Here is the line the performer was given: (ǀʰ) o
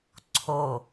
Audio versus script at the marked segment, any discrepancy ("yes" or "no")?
no